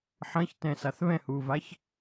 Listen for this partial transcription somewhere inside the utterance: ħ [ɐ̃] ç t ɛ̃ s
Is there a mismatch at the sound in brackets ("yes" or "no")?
no